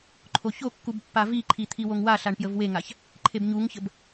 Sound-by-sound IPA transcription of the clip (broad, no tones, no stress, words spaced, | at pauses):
ǃʰoçokːub pːaviǃʰi t̪ʰiwoŋwaɬaɳ pjəvweŋaç | ǃʰebɲuŋçəb